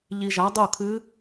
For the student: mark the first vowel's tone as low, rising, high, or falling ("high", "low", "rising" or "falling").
low